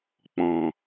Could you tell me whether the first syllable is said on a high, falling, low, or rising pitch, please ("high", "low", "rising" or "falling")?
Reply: low